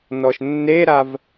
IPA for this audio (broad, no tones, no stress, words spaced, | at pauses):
nɔʃnːeɾav